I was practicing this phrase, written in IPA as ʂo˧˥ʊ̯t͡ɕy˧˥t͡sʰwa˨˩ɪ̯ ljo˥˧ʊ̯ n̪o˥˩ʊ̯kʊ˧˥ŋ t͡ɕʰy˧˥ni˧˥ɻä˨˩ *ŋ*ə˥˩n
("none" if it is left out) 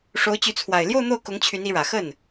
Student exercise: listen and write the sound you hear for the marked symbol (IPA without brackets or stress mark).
x